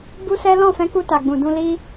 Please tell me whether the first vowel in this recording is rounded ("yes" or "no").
yes